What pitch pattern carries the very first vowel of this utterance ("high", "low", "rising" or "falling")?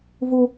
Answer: high